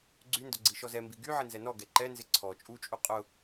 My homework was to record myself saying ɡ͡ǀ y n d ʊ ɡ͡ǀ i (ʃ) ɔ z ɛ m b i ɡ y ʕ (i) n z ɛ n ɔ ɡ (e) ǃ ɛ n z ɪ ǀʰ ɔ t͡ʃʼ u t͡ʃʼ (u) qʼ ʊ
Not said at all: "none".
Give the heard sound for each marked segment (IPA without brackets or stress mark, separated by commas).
ʃ, ɪ, ɛ, u